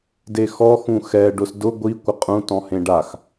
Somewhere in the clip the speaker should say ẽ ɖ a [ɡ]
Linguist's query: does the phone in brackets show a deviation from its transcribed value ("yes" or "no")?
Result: yes